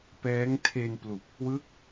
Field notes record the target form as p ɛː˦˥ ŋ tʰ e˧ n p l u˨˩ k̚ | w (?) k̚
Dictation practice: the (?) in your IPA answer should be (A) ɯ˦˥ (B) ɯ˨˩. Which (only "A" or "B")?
A